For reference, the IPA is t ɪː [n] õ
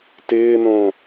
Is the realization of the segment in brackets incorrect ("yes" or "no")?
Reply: no